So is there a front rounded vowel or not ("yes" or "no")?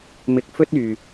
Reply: yes